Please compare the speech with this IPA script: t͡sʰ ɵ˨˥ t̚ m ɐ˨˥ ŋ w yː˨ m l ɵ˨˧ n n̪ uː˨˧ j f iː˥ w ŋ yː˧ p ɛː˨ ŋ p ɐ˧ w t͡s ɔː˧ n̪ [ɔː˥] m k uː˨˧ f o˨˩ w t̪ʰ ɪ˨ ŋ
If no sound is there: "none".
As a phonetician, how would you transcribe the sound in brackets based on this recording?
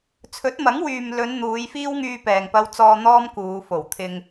ɔː˥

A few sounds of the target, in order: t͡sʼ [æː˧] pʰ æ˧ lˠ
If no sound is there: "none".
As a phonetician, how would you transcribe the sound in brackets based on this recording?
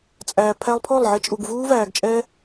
æː˨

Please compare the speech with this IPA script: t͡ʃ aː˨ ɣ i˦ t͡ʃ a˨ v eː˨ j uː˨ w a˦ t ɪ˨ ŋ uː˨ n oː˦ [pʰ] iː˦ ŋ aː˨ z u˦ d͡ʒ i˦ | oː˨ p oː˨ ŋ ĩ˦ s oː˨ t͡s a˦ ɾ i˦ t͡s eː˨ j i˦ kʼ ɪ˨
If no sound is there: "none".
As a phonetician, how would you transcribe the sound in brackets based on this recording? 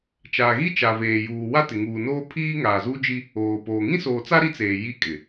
pʰ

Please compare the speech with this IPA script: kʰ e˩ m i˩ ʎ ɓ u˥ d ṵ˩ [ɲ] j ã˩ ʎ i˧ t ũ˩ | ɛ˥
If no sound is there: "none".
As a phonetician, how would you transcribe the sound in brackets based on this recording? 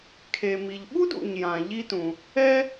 ɲ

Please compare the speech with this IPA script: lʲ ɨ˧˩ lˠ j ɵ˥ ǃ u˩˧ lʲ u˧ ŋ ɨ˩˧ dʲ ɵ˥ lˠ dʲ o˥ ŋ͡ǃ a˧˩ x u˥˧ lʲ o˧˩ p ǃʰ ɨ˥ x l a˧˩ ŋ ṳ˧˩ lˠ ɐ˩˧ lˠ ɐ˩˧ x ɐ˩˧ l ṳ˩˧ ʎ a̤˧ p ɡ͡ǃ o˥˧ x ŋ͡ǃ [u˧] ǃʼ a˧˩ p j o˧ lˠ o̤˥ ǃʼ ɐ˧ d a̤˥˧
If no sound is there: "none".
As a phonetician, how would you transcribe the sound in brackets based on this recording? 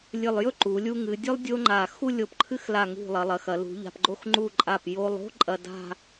u˥˧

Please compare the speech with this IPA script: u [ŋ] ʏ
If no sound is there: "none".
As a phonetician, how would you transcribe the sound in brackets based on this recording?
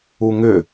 ŋ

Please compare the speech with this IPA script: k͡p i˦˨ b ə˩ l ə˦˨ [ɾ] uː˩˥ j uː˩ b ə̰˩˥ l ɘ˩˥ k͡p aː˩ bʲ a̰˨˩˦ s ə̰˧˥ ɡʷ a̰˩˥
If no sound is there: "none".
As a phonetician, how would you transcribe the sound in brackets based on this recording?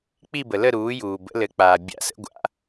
ɾ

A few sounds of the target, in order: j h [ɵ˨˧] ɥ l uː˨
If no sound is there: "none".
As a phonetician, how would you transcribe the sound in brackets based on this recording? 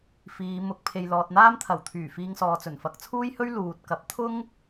ɵ˥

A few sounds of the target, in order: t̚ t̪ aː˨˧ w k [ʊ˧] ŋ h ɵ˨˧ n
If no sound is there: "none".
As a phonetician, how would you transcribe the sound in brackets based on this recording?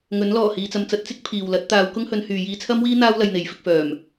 ʊ˥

